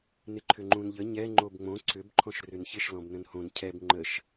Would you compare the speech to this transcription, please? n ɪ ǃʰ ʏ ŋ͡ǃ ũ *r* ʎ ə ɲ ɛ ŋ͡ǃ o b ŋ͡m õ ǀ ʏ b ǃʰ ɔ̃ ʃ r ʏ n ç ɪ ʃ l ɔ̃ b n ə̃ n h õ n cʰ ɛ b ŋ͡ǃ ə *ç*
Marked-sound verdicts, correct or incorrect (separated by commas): incorrect, incorrect